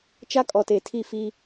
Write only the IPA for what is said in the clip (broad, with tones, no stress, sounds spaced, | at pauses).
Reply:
t͡ʃ a˦ kʼ ɔ˨ t e˨ tʰ i˦˨ f i˦